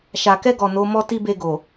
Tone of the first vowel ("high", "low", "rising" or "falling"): low